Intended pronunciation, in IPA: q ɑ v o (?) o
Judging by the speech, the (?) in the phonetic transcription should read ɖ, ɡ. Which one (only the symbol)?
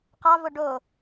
ɖ